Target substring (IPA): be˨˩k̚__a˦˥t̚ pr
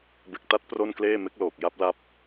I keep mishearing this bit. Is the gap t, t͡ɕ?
t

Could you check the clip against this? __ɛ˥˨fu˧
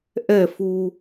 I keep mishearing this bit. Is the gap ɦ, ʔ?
ʔ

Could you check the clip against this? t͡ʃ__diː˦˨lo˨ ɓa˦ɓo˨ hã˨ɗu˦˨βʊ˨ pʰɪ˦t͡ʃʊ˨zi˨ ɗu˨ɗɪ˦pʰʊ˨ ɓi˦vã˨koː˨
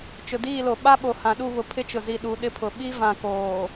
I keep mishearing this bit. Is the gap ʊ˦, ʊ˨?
ʊ˨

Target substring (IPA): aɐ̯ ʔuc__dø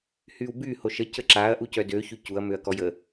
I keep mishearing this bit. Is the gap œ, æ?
œ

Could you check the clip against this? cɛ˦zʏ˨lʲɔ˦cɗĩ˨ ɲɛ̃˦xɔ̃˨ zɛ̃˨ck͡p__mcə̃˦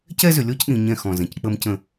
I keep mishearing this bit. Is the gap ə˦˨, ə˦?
ə˦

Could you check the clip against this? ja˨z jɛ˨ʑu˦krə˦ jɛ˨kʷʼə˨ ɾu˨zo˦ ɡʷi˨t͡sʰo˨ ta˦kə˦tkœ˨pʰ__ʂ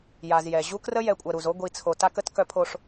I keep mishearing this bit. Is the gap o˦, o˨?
o˨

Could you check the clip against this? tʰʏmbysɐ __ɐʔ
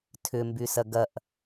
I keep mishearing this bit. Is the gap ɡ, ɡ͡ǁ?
ɡ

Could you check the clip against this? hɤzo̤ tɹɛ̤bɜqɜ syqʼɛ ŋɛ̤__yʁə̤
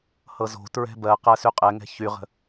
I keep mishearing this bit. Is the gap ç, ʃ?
ç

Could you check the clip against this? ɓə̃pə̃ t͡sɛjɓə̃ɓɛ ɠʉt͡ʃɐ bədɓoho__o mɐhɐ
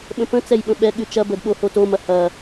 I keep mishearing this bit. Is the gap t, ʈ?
t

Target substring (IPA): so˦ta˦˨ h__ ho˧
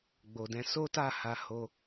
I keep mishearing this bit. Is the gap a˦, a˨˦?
a˨˦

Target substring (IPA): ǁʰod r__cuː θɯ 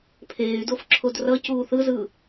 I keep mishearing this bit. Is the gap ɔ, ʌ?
ʌ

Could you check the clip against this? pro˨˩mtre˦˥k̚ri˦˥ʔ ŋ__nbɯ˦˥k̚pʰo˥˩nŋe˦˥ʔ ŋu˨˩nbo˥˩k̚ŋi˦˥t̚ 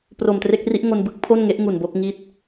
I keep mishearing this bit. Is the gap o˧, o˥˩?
o˧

